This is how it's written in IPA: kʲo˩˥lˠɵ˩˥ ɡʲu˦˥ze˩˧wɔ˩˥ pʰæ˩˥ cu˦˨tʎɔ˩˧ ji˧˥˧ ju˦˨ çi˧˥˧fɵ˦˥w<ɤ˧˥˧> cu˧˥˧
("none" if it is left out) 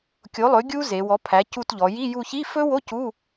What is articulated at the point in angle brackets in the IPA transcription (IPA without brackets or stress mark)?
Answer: o˧˥˧